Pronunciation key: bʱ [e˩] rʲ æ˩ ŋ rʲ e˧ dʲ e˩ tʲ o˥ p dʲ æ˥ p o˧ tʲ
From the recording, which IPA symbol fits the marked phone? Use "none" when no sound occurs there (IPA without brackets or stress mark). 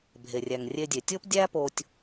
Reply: e˩